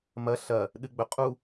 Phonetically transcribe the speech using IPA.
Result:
mɐ ɬɐ | ɗɨɡ͡bɵqʼu

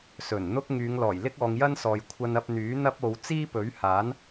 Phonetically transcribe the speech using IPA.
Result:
sɵ˨˩nn̪ʊ˥k̚ ŋyː˨˧ŋlɔː˨˩j lɪ˥k̚ɔː˨˧ŋjɐ˥nsɔː˨j kʷʰɐ˧nɐ˧p̚n̪yː˨˥ n̪ɐ˥p̚o˨˧w t͡siː˥pɵ˨˥ɥhaː˨˥n

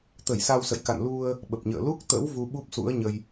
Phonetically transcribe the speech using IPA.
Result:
t̪ə˧˩jsa˧wsə̰˧˨jka̰˧˨n lu˧ə̯ | ɓə˨˩p̚ɲə̰ː˧˨ lu˦˥k̚t̪ə̰˧˥w vu˧ɓu˦˥p̚sṵ˧˥ə̯ɲə˧j

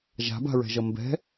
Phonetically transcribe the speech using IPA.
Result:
ʒa̤ba̤ɹɛ̤ʒʌ mbɛ̤

